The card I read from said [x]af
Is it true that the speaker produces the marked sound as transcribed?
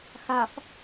yes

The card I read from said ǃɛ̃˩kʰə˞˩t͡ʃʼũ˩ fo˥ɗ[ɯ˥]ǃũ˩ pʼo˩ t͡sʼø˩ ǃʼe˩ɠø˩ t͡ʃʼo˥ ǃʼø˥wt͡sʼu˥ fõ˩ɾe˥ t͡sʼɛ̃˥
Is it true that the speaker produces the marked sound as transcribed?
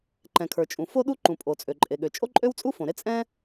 no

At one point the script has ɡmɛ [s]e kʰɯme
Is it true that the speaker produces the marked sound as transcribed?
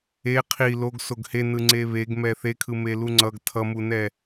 no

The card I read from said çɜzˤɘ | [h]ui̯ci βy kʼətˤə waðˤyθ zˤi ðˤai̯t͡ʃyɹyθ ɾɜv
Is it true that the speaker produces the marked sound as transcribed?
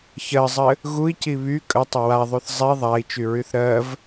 no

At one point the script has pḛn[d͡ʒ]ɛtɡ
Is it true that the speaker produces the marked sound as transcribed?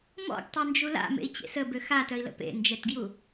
yes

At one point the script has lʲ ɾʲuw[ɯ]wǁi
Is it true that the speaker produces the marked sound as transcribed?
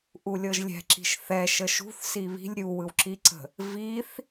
yes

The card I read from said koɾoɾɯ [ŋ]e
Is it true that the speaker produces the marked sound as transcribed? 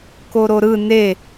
no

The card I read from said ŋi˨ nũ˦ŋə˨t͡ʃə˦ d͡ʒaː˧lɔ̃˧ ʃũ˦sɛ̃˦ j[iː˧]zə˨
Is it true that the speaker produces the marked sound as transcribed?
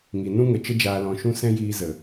yes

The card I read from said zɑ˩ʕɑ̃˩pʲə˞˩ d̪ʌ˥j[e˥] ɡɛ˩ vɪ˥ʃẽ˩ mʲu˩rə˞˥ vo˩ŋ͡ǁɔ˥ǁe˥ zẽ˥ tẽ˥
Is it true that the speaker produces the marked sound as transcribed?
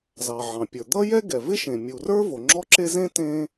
no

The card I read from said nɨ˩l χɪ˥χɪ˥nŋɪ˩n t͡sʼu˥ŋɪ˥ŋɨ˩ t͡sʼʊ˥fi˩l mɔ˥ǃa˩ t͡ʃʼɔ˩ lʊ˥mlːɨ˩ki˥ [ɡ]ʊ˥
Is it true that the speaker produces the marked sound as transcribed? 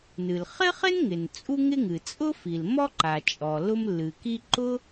no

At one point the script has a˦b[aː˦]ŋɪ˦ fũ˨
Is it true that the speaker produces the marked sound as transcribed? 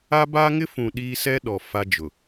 yes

